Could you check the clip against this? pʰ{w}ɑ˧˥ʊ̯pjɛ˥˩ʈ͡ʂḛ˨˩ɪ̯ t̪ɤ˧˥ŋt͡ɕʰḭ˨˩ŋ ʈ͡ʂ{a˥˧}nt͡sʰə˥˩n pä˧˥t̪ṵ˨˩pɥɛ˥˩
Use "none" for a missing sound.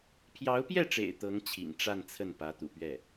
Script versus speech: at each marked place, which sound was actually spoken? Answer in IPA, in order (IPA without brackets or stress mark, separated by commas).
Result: j, a˥˧